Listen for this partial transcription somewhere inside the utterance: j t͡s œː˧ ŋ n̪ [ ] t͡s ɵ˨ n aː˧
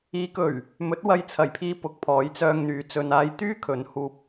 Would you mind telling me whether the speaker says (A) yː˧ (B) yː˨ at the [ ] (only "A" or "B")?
B